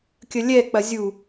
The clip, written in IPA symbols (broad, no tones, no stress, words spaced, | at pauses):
kʲəlʲɛ k͡pɐzʲu